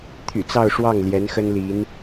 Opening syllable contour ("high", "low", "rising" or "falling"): low